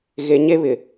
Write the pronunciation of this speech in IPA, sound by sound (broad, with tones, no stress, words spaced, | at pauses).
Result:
ɣe˨ ɲe˦βɪ˨